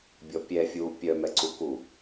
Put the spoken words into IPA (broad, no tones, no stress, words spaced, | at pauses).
bʲɔpʲɛ fʲu pʲœ mɛǀuku